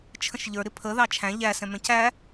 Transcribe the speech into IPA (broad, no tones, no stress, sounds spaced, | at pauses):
t͡ʃʰ ə̃ ʃ ʎ ə˞ ɾ ɪ pʰ ə ð ɑ t͡ʃʰ æ̃ ʎ æ s ɛ̃ m ɛ̃ c æ